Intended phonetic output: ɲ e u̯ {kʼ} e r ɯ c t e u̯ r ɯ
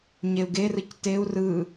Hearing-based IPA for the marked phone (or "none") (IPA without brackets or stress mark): ɡ